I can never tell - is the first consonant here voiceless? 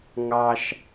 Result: no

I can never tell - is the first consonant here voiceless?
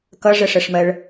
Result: yes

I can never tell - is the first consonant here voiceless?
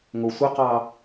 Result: no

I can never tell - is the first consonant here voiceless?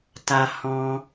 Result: yes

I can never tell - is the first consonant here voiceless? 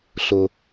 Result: yes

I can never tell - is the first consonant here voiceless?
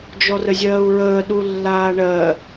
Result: no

